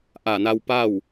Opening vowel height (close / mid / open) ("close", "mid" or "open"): open